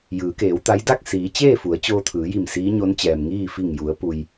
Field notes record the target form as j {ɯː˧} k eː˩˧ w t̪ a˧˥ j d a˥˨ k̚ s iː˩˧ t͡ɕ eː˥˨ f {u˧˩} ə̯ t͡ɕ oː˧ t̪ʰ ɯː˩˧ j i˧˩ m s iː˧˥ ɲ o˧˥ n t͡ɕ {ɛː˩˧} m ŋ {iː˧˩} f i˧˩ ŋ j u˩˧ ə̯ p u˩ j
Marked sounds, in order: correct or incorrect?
incorrect, incorrect, incorrect, incorrect

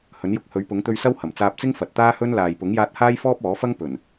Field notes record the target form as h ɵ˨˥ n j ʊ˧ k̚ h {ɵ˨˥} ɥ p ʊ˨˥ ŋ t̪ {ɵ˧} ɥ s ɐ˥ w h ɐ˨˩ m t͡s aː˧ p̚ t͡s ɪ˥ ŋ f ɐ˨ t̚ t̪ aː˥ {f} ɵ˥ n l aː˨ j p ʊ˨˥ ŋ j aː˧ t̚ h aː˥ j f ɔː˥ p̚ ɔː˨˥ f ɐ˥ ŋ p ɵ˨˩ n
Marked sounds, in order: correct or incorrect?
correct, correct, incorrect

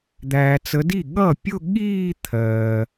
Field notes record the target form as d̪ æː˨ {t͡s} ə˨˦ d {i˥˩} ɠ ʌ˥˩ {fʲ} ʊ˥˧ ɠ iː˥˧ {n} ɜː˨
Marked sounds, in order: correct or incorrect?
correct, correct, incorrect, incorrect

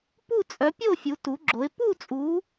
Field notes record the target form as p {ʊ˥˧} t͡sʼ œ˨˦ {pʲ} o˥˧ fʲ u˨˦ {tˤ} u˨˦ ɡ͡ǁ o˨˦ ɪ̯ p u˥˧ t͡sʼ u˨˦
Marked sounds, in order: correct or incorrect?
incorrect, correct, incorrect

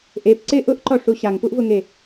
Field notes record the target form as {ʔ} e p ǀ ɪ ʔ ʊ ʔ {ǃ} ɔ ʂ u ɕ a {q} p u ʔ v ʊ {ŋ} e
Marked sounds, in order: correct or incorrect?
correct, correct, incorrect, correct

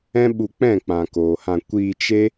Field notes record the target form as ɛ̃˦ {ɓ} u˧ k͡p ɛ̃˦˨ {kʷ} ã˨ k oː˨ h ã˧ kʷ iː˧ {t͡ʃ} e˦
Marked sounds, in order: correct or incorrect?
correct, incorrect, correct

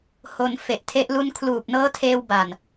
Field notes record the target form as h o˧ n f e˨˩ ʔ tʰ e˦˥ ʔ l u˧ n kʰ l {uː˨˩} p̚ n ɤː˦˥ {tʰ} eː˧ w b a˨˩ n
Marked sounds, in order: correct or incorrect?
correct, correct

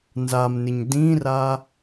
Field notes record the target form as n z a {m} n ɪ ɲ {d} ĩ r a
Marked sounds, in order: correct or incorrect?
correct, correct

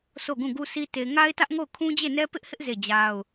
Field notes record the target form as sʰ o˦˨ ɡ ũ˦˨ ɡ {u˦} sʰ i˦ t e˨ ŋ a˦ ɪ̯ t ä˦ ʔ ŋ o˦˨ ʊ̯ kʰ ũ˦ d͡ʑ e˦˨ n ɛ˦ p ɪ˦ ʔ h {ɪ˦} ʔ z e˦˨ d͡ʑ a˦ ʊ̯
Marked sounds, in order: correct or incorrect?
correct, correct

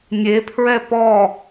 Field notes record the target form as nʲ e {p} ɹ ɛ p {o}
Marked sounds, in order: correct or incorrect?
incorrect, incorrect

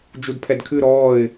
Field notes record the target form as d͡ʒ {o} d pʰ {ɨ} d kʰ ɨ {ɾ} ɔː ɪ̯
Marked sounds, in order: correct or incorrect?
incorrect, incorrect, correct

